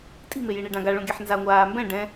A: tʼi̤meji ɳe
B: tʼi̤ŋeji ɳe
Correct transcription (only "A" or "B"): A